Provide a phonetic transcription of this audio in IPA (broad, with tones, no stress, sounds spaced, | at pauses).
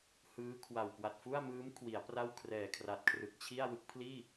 h ɯː˦˥ kʰ w a˨˩ w k w a˨˩ t̚ f u˥˩ a̯ m ɯː˦˥ m kʰ w i˩˦ a̯ p r a˥˩ w kʰ r ɛː˨˩ kʰ r a˨˩ t̚ kʰ r ɯ˨˩ k̚ t͡ɕʰ i˥˩ a̯ w ɯ˦˥ k̚ pʰ l iː˥˩